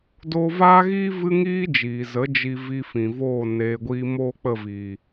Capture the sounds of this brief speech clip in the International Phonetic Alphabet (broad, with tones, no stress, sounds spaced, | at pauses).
d oː˧ v aː˦ ɣ iː˦ v ɨ˦ ŋ iː˦ d͡ʒ iː˨ z ə˨˦ d͡ʒ i˧ v i˧ f ĩ˨ v oː˦˨ n eː˧ ɡʷ iː˦ m oː˦ k͡p ə˦˨ v iː˨